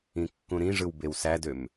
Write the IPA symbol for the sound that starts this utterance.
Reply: ĩ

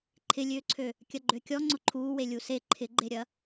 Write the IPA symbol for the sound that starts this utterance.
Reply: ǃʰ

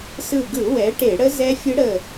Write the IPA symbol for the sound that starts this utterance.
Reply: s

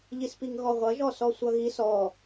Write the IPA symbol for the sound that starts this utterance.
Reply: ʎ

